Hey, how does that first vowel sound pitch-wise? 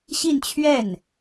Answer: falling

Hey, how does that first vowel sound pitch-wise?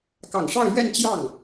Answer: low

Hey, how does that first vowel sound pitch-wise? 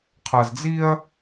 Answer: low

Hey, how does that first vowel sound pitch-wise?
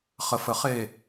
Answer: low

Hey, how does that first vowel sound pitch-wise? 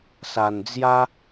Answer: low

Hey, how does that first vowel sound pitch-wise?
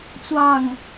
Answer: falling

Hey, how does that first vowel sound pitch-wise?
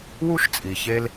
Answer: high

